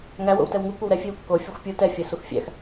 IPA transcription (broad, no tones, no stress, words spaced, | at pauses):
ŋæwo̰w tɛwŋu kʷɐwɾɛ fʲewkːo fʲuxʷpʲu tɛfʲæ suxfʲæ̰x